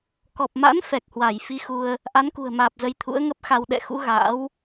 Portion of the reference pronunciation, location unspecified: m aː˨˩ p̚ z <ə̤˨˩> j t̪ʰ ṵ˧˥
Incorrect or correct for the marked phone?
incorrect: ə˧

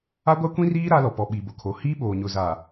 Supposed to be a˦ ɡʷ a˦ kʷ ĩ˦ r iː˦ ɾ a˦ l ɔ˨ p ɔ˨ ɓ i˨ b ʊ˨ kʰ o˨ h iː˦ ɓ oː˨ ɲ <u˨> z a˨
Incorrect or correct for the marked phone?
incorrect: ʊ˨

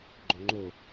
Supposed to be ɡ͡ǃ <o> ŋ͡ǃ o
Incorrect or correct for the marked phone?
correct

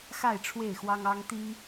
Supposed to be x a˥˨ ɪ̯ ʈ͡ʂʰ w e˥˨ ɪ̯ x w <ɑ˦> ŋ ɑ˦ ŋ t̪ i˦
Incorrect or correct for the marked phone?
correct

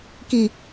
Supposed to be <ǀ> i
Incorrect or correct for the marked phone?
incorrect: k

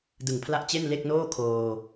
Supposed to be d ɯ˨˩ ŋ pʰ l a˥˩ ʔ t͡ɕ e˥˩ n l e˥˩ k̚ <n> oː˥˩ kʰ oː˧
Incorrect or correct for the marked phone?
correct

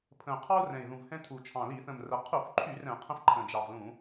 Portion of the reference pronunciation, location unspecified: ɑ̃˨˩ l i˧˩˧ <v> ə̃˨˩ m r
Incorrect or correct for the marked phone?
incorrect: θ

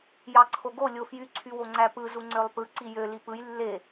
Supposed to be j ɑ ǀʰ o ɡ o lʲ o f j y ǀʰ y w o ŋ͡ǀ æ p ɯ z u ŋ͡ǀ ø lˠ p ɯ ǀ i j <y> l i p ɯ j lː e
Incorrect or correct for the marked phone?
incorrect: ø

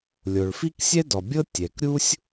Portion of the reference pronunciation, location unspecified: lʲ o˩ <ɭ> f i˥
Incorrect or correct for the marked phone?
correct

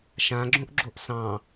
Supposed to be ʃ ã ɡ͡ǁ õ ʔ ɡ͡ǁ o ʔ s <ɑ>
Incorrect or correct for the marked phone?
incorrect: ɑ̃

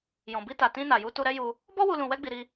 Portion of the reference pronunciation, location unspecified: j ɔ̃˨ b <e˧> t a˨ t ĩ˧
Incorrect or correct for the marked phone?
incorrect: i˧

